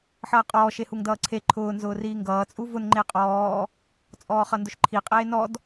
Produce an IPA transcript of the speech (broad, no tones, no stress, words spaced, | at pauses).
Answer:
ħʌːqʼɔː ʃehuŋdʌːǀʰe ǃʰʊː nzʊːriːŋɡʌː t͡sʼuvʊn ŋ͡ǃeqʼɔː | t͡sʼɔːχʌndʊʃǃʰi qʼeːnɔd